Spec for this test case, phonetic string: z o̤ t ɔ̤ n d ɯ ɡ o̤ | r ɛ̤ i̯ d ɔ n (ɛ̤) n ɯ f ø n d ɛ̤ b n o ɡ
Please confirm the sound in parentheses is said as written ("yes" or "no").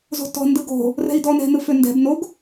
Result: yes